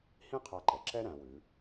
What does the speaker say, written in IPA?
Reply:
h ĩ˥ qʰ a˧ ǃ ɛ˩ ǁ ɛ˥ ɾ æ̃˩˧ w ʉ˩˧

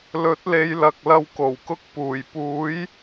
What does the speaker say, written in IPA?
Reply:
l ɵ˨˥ t̚ l e˨˧ j l ɐ˨ k̚ l ɐ˧ w k o˨˩ w k ʊ˧ k̚ p uː˨˩ j p uː˨˥ j

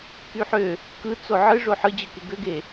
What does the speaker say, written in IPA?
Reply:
k y ħ ø | k ɯ t͡s o ʕ ɯ ʐ o ħ ɯ d͡ʑ ɯ k e ɡ ø ɡ e

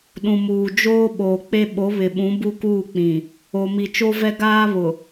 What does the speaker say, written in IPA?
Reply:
ɗ ũ˨ m uː˨ d͡ʒ oː˦ ɓ oː˨ k͡p e˦ ɓ o˨˦ β ɪ˨ ɓ ũ˨˦ b u˦ k uː˦˨ k͡p ĩ˨ | o˨ m i˨ t͡ʃ o˦ v ɛ˦ ɡ aː˦ β ʊ˨

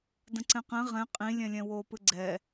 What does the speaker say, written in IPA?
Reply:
d ə̃ ǀ ɛ̃ q ɛ̃ ʁ ɛ̃ qʼ ĩ lʲ ɛ̃ lʲ ɛ̃ w o p ɨ ɡ͡ǀ ɛ

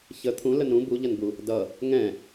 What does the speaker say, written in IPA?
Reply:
ç ə t̪ʰ ũ l ə n ɾ ũ b u ʎ ɐ n b u | d ʌ | ŋ ɛ̃

